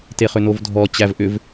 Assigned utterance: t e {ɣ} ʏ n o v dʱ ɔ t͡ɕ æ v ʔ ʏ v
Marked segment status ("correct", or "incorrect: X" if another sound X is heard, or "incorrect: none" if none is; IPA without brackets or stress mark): incorrect: χ